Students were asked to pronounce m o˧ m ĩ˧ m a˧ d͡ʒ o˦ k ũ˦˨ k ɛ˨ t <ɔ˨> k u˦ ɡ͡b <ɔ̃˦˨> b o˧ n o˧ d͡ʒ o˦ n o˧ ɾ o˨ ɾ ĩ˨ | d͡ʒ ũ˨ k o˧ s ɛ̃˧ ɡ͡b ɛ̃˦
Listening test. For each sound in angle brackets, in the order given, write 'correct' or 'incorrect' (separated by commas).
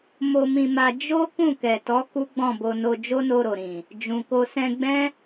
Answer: incorrect, correct